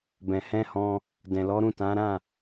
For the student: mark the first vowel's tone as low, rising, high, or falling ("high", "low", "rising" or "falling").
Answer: low